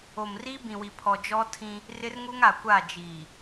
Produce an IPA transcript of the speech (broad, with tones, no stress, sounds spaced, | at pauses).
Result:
o˨ m r i˦ b ĩ˨ w i˨ pʰ ɔ˨ d͡ʒ ɔ˦ tʰ ĩ˦ | r ɪ˦ r ŋ uː˦ ŋ a˨ kʷ aː˦˨ d͡ʒ iː˨